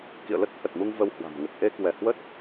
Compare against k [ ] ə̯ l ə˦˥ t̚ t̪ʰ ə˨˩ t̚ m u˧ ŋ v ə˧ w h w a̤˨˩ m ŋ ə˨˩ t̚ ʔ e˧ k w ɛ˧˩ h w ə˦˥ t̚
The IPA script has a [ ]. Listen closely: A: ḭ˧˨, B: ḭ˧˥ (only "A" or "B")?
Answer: A